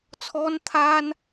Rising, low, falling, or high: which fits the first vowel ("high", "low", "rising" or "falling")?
high